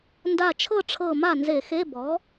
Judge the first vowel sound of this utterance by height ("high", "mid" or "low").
low